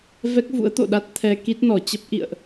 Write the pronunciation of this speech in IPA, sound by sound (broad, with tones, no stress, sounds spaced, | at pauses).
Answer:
v ɛ˦˥ k̚ v ṵ˧˥ ə̯ t̪ o̰˧˨ ɗ a˦˥ t̚ t̪ʰ ɛ˧ k i˦˥ t̚ n ɔ˧˩ t͡ɕ ə˦˥ p̚ ʔ ḭ˧˨ ə̯ ʔ